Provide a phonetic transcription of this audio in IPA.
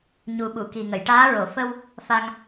ɲ u˨˩˦ ɓ u˨˩˨ k i˨˩ ŋ ə˨˩˨ j ʈ aː˧˥ ɹ o˨˩˨ f ə˧ w | f a˧ ŋ

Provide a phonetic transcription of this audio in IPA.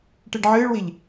ʈ ɨ ɖ ʕ ɨː ɭ w i ʎ

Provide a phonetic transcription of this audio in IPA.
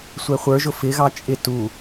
sʷ ɛ χʷ ə˞ ʒ ʊ f ɪ ɣ ɑ t͡ʃʼ ɪ t u

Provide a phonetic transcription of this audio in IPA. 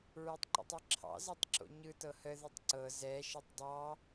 ɹ e tˤ ǃ o̰ tˤ e ǁʰ ɑ̰ z ɛ tˤ ǁ o̰ ɲ ɯ t ɤ h ə ð ɯ tˤ ǀ ɤ z ɛ ʃ e tˤ dˤ ɑ

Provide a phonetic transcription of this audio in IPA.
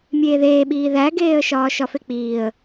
mʲ eː ð eː ɓ iː ð æ ɡ eː ə̯ ʃ ɒː ʃ ɒ f e k͡p iː ə̯

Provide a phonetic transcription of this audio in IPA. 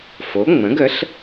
f o˩˥ ŋ͡m ə̃˩˥ ɡ ə˩˥ ɬ

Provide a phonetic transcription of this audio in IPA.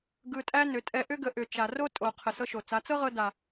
ɡ ɯ˧ tʼ æ˦ n ʏ˨˦ tʼ ɛ˧ ʔ ʏ˦ ɡ ə˨˦ ʔ ʏ˨ t͡ʃ a˨ r o˦ tʼ o˨ qʰ ə˨ s ɤ˧ ʃ o˨ t͡s a˨˦ t͡s ɤ˦ ʁ ɤ˧ d a˨

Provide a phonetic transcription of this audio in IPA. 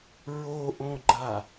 ɹ o ʔ õ ɡ͡ǃ a

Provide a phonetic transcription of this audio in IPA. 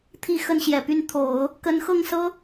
t̪ʰ i˥˧ x ə˥˩ n ɕ j ɛ˨˩ p y˥˩ n t̪ʰ o˨˩˦ ʊ̯ | k ə˧˥ n x ɤ˥˩ ŋ s ɤ˥

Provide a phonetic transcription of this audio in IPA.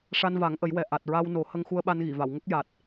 ʂ a˧ n v a˨˩˦ ŋ ʔ ə˨˩˦ j w ɛ˨˩ ʔ a˨˩ t̚ ɹ a˧ w n o˨˩˦ h ə˧ ŋ x u˧ ə̯ ɓ a˧ n ɣ i˨˩˨ v a˨˩˨ w ŋ ə˦˥ k̚ j a˨˩ t̚

